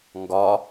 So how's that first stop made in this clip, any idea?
plain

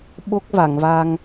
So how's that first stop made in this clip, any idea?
implosive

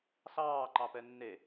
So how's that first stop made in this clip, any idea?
click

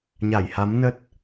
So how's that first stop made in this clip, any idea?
plain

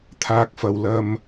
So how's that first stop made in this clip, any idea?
aspirated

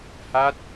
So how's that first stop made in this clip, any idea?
plain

